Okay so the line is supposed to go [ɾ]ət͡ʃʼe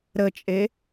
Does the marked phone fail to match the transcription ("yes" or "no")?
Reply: no